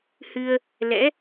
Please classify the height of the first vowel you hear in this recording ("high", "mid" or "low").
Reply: high